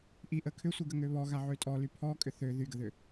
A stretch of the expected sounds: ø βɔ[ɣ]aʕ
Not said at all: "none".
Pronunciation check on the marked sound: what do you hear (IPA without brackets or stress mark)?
ɣ